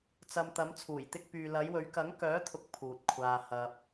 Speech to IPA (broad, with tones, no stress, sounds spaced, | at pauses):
t͡s ɐ˧ m t̪ ɐ˨˥ m t͡sʰ uː˨˩ j t̪ ɪ˥ k̚ p yː˧ l ɐ˨˥ j w ɵ˨˥ ɥ k ɐ˨˥ ŋ k œː˨˥ t̪ʰ ʊ˨ k̚ pʰ uː˨ t̚ kʷʰ aː˧ h ɐ˧ p̚